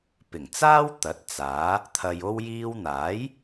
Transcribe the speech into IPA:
pɪ˨˩ŋt͡saː˥wt̪ɐ˨˥t̚ t͡saː˨˥ | t̪ʰɐ˨j o˧wjiː˧wn̪aː˨˥j

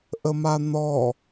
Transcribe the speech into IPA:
ʔəman̪ɔ

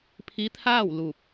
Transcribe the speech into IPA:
pʰi˧˥t̪ʰaː˥˨w lu˧˩p̚

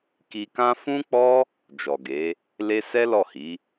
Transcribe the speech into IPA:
ki˧kã˦ fũ˦k͡pɔ˦ | d͡ʒɔ˨ɡe˨˦ | le˧ sɛ˦lɔ˦˨hi˨˦

